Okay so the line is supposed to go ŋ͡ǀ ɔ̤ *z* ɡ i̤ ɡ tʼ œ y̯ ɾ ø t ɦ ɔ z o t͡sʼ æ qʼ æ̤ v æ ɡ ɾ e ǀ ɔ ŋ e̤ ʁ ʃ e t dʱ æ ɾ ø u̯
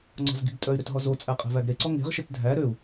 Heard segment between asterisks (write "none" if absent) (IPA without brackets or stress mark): z